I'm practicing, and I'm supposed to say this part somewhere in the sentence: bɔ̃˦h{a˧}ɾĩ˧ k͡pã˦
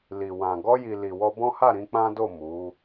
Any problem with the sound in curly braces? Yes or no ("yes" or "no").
yes